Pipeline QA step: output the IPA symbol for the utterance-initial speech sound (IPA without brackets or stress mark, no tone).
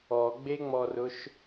ɔ